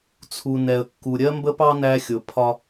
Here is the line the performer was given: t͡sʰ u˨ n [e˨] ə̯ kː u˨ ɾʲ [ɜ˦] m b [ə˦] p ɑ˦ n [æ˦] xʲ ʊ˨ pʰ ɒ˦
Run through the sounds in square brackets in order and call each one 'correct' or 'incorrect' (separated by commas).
incorrect, correct, correct, correct